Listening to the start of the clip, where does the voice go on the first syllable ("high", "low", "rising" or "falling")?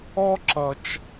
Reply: high